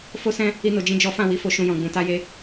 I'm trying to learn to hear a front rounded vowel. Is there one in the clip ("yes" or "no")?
no